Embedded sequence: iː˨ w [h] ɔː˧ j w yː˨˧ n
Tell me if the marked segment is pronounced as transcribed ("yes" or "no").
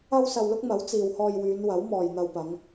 yes